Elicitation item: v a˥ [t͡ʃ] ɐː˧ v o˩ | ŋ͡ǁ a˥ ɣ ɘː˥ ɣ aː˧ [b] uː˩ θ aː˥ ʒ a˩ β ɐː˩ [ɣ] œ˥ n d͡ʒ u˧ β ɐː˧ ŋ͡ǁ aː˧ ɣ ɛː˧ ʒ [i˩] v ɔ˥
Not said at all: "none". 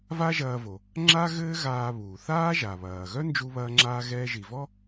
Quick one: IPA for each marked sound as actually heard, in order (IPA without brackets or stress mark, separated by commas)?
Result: ʒ, β, ɣ, i˩